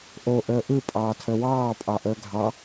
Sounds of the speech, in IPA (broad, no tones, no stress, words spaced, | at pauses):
ʔo ʔəːʔɯ pʼɑːtʰəwɑː pʼɑʔəːɡʱɑ